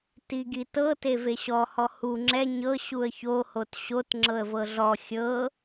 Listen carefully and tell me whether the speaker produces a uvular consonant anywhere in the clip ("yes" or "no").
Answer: no